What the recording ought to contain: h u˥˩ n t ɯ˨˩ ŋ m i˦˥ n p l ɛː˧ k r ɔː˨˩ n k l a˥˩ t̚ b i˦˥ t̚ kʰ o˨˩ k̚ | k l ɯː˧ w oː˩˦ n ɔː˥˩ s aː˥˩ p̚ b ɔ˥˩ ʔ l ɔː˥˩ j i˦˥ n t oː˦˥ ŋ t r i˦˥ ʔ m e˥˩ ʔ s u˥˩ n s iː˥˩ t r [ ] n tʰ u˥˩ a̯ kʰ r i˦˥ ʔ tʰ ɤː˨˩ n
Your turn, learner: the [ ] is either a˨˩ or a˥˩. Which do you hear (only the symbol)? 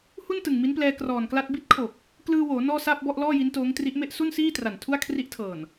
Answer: a˨˩